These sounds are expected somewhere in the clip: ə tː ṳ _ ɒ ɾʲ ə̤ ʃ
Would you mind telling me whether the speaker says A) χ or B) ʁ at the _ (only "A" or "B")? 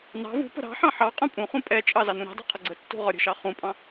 B